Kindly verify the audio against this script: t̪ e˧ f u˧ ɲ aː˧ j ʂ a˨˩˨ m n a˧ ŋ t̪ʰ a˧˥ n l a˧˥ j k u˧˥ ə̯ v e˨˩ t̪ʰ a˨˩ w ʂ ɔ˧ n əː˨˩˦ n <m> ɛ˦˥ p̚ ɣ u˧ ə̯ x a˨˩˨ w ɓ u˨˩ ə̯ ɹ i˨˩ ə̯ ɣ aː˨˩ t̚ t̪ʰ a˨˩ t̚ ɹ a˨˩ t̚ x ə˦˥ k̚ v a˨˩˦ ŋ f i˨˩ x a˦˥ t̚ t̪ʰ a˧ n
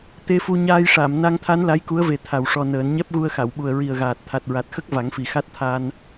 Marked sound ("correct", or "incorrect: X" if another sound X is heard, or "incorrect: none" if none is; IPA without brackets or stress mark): incorrect: ɲ